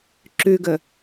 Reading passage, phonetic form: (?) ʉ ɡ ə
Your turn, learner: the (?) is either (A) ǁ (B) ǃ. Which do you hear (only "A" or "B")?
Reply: A